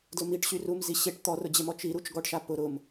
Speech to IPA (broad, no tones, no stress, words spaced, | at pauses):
dlʊmiʈ ɕyrumzi ɕeʈ t̪ɔrʊd͡ʑemɔ t͡ʃiɾut͡ʃ ɡɔʈʃa pʊ ɾʊm